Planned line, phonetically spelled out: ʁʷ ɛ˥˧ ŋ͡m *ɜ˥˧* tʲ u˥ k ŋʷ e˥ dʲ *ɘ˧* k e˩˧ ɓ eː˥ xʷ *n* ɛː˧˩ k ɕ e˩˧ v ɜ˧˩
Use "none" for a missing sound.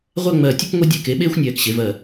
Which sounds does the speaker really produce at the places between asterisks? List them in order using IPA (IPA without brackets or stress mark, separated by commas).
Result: ɜ˧˩, e˧, nʲ